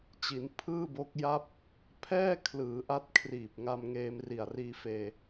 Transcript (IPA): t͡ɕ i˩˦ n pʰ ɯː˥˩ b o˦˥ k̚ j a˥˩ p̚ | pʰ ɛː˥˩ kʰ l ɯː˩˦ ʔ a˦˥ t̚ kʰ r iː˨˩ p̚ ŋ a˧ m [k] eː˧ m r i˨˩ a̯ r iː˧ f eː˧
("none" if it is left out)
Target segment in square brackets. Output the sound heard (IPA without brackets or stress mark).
ŋ